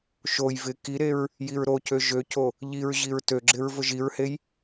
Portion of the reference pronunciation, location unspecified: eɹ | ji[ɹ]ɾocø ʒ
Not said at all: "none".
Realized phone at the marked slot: ɹ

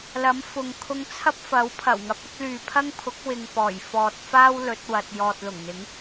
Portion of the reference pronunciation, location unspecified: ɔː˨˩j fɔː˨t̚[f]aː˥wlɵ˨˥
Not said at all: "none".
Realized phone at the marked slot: f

